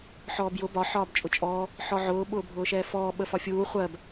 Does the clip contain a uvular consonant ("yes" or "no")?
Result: yes